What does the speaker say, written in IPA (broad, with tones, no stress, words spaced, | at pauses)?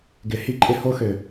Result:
ɡɪ˨˦hi˦ǃʼɪ˦ ho˦xø˨